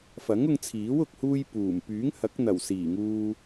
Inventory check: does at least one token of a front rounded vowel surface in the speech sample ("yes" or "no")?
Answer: yes